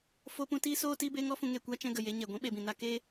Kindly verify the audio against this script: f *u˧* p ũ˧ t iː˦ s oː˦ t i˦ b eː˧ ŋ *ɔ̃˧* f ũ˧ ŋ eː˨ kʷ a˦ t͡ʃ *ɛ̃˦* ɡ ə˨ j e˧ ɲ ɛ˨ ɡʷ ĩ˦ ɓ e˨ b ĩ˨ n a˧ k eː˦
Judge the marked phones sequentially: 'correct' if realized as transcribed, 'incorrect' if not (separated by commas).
incorrect, incorrect, incorrect